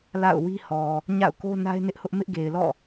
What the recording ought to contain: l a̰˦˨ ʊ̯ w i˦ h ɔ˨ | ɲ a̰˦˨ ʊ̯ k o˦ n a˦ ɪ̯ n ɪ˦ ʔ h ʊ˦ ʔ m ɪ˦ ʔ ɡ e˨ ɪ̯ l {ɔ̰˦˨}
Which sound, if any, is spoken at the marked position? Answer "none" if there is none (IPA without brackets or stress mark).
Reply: ɔ̰˦˨